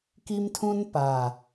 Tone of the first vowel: high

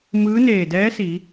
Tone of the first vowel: rising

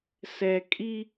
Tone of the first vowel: low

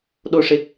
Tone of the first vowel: low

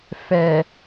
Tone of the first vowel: low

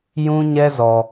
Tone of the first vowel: high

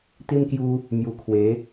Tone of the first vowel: high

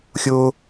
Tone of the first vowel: high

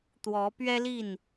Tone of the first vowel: rising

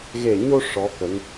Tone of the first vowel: low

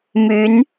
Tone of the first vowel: rising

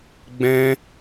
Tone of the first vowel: high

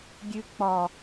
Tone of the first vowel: high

